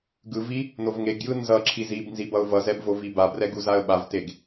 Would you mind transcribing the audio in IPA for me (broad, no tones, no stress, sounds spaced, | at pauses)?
ɡ ɯ v i | n o v ŋ e ɡ j ɯ n z ʌ ǁʰ i z i b n z i b ʌ ʊ̯ v ʌ z ɛ b v o v i b a b r ɛ ɡ u z a ə̯ ɓ a v t e ɡ